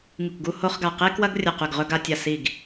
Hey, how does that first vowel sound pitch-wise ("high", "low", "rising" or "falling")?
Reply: falling